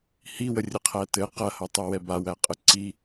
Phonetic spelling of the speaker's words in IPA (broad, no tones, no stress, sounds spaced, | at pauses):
h i w ə rʲ ɘ qʰ æ t ɘ q ɐ h ɐ tˤ o w ɛ b a w æ qʼ ɘ ǀ i